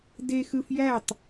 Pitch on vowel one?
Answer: high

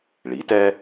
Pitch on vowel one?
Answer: rising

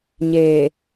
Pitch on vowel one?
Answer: low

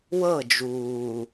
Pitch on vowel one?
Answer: falling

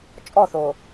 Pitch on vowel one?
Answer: falling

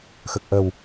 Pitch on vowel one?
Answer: low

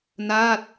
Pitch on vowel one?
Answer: falling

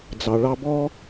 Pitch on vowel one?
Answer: low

